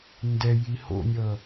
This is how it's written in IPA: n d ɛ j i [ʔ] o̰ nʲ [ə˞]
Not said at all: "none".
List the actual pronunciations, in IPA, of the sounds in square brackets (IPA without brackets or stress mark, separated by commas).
h, ʌ